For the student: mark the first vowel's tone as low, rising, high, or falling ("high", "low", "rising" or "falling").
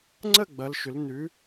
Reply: falling